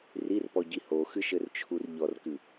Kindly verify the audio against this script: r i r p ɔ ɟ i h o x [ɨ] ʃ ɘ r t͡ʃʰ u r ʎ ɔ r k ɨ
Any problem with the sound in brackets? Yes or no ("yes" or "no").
no